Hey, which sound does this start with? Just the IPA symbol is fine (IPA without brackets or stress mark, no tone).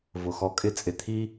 v